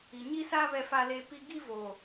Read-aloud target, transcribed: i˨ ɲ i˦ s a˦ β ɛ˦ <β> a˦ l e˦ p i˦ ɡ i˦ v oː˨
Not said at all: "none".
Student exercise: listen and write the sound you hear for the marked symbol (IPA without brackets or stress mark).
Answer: f